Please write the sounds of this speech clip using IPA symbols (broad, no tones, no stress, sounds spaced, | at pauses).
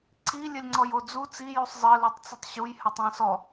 ǀ i lʲ ɘ lʲ ŋ͡ǀ ɔ j o d͡z u t͡s i j u sˤ zˤ ɘ l u tˤ t͡s ɘ tˤ ɕ u j h ɜ tˤ ɑ̃ s ɔ